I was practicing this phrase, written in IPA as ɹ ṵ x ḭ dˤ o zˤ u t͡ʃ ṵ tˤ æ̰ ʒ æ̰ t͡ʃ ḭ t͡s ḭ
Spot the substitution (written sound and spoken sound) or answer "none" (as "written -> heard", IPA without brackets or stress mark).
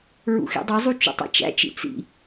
ʒ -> t͡ʃ